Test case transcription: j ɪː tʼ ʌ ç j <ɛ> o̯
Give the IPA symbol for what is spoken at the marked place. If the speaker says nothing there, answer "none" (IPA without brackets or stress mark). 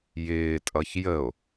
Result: ə